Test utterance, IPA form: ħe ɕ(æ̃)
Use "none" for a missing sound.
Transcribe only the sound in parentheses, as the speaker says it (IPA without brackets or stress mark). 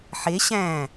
æ̃